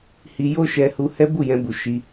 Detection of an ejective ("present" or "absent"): absent